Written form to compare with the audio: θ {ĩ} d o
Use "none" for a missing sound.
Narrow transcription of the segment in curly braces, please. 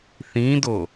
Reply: ĩ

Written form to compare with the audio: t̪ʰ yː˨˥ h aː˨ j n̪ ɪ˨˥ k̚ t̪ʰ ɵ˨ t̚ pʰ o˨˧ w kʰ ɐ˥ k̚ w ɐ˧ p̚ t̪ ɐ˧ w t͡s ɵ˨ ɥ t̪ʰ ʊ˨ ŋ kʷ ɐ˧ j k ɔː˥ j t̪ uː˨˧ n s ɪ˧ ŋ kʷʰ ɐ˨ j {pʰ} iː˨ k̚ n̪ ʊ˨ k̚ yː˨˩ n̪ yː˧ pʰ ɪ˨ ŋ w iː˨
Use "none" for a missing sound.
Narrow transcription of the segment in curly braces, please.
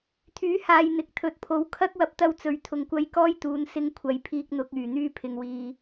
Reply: pʰ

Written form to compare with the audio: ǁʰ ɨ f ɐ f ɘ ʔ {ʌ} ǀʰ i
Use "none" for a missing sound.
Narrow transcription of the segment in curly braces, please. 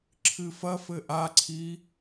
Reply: a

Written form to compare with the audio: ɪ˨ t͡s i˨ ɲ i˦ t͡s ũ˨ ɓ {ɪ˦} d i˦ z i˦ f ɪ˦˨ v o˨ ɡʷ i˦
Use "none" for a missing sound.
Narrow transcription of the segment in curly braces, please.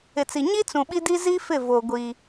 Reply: i˦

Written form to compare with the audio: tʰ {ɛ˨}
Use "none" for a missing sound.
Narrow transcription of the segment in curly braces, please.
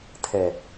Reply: ɛ˨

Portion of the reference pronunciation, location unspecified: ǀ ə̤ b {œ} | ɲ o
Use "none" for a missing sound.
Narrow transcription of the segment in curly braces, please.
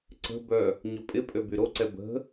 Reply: œ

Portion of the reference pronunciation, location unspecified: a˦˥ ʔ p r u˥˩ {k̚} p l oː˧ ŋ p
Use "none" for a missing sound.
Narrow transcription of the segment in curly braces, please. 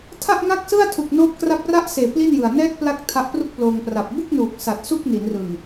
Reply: k̚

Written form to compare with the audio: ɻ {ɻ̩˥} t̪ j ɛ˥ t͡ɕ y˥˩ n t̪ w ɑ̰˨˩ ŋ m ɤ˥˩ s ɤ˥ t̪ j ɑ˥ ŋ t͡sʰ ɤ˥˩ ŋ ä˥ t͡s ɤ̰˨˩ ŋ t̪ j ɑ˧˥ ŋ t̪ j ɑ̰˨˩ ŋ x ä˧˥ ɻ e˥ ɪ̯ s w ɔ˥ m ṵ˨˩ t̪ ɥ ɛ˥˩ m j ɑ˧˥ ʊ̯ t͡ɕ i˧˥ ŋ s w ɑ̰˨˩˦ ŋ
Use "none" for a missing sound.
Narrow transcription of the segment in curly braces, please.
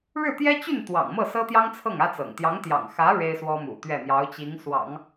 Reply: ɻ̩˥˩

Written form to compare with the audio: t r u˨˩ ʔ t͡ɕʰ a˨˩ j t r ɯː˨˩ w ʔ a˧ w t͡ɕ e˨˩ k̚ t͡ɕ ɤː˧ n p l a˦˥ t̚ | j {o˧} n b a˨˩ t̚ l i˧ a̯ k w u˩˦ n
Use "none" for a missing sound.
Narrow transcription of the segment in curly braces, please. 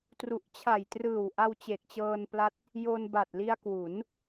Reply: o˧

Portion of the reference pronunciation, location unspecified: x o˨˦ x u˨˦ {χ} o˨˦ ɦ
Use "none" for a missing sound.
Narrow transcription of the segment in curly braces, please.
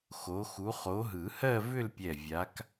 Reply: χ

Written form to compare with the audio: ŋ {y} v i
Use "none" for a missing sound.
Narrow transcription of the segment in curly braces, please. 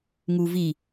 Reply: u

